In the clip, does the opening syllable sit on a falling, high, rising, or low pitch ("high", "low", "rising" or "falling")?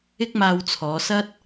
high